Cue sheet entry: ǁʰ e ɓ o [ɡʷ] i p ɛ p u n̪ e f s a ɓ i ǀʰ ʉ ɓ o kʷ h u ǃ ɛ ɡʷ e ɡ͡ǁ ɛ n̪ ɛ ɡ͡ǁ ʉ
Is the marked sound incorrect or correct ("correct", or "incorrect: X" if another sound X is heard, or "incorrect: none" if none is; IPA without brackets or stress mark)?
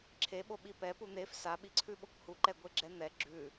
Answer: incorrect: ɓ